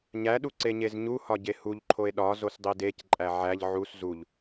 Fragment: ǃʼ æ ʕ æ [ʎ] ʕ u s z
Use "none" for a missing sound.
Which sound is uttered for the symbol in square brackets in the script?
ʎ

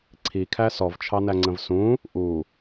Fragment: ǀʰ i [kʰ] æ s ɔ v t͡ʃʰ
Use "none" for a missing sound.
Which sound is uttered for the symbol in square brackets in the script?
kʰ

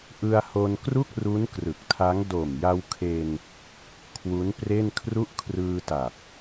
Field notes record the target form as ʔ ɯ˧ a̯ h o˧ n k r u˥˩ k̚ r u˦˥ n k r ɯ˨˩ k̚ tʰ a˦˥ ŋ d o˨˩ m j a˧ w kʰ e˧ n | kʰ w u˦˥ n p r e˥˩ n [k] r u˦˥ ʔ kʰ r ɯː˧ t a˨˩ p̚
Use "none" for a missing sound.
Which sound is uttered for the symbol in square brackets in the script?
kʰ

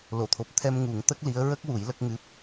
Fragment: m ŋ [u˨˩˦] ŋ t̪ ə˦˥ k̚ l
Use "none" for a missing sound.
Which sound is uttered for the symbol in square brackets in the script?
u˨˩˦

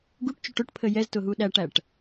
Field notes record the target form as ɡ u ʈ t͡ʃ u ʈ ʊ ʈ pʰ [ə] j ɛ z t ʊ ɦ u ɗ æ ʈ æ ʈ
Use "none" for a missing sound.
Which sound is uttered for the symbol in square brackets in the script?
ə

